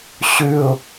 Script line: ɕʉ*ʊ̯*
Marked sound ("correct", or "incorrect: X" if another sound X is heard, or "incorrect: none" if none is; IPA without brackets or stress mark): correct